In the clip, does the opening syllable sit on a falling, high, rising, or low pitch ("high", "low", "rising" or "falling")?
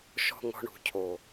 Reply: low